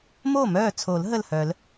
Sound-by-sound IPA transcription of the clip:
m o˥˩ m œː˥˩ t͡sʰ o˨˩˦ l ɦ ə˥˩ l h œ˨˩˦ l

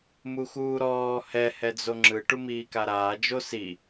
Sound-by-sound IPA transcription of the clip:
m u x uː ɾ ɔː h ɛ h ɛ d͡z o ŋ͡ǁ ɯ ʈ u m iː k a ɾ aː d͡ʒ o s i

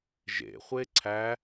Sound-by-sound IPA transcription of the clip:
ʒ ḛ χʷ e ǀʰ æ

